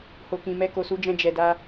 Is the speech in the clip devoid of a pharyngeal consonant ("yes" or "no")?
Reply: yes